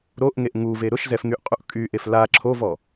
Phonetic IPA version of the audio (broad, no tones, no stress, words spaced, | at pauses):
ɾoʔŋeʔ ŋuve ɾʊʃzɛfŋyʔqʼuʔ kʼyʔef la ǁʰovɔ